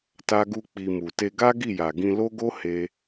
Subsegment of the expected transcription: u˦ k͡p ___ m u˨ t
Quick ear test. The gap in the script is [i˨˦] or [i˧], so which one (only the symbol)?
i˧